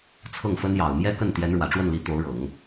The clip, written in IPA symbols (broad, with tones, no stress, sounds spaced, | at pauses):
t͡sʰ ɤ˥˩ ŋ f ə˥ n j ɑ˨˩ ʊ̯ m j ɛ˥ k ə˥˩ n t̪ j ɛ˧˥ n ɻ w ä˨˩ ʈ͡ʂ w ə˥˩ n l i˧˥ t̪ o˧˥ ʊ̯ ɻ ɤ˨˩˦ ŋ